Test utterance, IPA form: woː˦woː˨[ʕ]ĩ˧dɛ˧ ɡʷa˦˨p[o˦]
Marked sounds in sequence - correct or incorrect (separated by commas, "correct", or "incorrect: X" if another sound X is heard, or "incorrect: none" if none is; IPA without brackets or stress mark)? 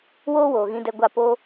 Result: incorrect: ɣ, incorrect: oː˦